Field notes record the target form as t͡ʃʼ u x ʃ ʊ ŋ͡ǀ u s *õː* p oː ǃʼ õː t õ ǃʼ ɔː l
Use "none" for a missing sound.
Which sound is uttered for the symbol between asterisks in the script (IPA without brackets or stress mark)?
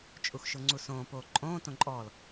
õː